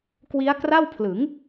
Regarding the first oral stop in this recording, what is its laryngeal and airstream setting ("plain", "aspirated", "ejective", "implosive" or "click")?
plain